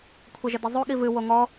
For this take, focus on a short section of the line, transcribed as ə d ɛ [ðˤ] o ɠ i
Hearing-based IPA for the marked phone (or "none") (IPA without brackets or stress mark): zˤ